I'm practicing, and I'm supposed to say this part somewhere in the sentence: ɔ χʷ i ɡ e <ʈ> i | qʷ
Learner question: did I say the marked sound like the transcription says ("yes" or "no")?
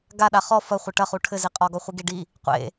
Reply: no